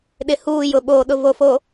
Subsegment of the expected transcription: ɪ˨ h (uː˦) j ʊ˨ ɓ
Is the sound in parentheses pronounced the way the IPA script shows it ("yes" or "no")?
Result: no